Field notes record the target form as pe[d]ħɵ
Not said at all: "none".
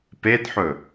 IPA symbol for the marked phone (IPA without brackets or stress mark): d